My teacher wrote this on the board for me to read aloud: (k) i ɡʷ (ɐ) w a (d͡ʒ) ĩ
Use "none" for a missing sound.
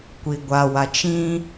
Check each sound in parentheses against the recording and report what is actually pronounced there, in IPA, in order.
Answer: kʷ, a, t͡ʃ

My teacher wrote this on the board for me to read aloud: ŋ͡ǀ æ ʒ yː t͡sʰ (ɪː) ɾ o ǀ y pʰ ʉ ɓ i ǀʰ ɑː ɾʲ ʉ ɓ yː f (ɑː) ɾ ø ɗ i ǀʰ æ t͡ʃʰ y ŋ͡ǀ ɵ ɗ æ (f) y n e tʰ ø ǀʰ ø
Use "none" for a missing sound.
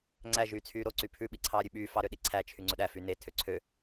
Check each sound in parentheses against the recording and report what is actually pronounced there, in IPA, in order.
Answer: yː, ɑ, f

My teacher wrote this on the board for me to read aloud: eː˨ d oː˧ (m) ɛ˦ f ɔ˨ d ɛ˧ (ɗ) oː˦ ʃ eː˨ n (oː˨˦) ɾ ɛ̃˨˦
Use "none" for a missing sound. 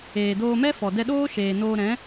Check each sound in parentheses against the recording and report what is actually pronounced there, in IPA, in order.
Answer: m, ɗ, oː˧

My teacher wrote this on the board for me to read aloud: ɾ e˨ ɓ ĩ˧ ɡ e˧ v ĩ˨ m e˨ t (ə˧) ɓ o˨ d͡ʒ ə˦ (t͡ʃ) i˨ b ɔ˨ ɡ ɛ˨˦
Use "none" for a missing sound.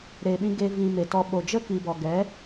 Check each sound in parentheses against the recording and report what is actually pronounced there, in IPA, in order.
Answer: ɔ˧, k

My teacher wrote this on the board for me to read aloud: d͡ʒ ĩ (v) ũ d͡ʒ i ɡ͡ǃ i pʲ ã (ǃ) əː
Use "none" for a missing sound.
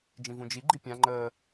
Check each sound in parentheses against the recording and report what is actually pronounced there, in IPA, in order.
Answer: v, ŋ͡ǃ

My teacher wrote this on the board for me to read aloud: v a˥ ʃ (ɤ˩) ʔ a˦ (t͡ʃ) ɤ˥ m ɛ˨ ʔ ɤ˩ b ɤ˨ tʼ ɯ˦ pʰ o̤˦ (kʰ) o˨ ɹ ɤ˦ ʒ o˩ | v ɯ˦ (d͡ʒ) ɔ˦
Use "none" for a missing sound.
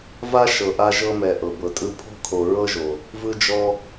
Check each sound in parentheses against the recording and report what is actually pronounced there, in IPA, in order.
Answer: ɤ˨, ʒ, kʰ, d͡ʒ

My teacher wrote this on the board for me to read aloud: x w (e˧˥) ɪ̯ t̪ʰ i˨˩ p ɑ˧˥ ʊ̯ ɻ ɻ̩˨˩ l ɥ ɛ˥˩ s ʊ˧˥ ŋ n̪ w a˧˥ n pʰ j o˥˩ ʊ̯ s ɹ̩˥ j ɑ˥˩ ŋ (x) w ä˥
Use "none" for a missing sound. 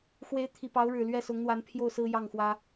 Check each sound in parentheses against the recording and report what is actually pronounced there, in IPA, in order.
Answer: e˧˥, x

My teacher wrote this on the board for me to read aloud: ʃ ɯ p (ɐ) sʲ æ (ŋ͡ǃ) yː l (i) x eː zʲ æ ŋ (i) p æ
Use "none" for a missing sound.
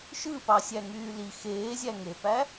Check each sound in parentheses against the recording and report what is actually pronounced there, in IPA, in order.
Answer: ɑ, ŋ, i, e

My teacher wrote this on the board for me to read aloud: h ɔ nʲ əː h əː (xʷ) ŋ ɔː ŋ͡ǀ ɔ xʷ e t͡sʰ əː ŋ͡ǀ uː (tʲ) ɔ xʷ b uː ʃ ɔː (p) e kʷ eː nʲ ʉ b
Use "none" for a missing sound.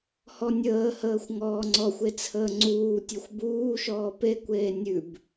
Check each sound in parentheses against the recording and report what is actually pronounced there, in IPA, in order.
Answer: xʷ, tʲ, p

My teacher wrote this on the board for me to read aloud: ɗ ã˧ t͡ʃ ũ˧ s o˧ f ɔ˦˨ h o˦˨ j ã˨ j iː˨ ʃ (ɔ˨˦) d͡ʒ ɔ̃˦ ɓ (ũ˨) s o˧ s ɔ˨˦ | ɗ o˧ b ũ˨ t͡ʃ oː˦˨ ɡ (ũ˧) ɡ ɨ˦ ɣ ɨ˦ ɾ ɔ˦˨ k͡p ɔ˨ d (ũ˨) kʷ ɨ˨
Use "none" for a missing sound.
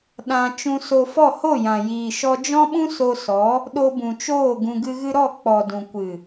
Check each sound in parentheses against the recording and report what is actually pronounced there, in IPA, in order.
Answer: ɔ˧, ũ˦, ũ˧, ũ˨

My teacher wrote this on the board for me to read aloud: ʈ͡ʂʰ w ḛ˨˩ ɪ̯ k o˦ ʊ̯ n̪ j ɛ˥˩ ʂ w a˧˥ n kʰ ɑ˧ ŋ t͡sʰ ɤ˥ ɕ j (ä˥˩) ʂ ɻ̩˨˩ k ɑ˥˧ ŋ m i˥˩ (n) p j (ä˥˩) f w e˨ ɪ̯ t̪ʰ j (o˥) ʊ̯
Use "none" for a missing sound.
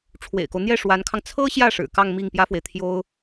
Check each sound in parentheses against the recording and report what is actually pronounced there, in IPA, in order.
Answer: ä˥˩, ŋ, ä˥, o˥

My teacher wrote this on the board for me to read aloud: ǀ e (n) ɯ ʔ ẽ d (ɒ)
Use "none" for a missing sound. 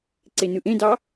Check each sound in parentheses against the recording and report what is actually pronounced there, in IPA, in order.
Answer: n, ɑ

